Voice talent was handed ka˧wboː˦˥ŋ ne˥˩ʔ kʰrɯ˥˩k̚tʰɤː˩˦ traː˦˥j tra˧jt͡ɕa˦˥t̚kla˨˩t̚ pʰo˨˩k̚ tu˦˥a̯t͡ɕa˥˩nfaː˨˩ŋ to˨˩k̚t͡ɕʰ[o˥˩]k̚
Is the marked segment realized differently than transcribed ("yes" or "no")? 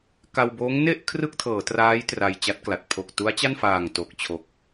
yes